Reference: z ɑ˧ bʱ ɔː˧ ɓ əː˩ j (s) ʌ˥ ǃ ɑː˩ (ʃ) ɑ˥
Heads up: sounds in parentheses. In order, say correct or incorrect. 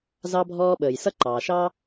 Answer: correct, correct

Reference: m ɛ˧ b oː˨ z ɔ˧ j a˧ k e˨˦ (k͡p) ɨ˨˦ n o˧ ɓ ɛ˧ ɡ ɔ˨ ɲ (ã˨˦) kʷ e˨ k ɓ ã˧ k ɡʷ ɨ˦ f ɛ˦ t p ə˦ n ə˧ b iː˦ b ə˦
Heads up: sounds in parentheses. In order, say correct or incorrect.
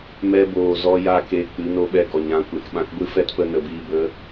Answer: correct, correct

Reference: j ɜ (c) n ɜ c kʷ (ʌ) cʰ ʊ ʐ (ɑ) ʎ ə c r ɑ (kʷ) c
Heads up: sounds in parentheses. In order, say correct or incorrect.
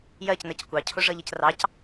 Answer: correct, incorrect, incorrect, incorrect

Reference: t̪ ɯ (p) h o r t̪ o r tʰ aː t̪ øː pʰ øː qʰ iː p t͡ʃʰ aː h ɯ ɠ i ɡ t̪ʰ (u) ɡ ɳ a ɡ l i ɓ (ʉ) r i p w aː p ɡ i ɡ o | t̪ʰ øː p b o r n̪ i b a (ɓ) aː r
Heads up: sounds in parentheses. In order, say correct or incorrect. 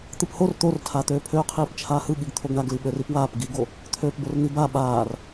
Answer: correct, incorrect, incorrect, correct

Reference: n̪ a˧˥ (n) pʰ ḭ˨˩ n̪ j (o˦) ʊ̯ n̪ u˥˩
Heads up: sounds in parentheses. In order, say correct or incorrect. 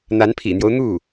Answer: correct, correct

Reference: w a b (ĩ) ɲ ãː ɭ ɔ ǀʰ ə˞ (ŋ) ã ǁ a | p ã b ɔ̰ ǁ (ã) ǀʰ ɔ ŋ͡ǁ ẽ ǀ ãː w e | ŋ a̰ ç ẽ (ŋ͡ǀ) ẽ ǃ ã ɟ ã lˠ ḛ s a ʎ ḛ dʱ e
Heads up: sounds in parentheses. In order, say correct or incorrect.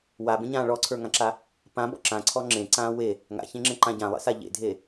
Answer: incorrect, correct, correct, incorrect

